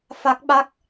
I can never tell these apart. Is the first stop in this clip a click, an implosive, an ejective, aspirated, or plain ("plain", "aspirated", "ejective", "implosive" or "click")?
plain